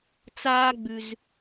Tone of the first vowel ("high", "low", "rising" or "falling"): high